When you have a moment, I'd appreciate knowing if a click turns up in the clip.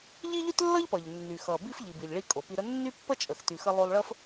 no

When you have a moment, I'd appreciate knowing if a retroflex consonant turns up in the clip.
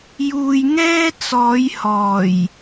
no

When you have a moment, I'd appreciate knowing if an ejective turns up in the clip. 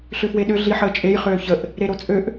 yes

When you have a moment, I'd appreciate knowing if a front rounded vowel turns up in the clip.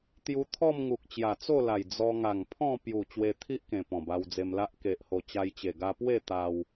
no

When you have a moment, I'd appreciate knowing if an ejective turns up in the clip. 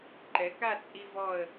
yes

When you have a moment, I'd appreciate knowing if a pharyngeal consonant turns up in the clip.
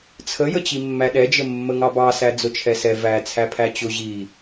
no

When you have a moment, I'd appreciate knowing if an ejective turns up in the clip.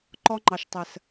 no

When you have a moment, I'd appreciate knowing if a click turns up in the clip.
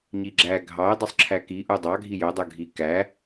yes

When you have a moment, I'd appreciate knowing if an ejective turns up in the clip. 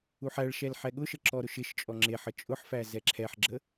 yes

